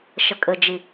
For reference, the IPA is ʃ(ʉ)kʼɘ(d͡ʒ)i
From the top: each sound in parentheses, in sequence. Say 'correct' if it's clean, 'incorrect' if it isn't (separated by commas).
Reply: incorrect, correct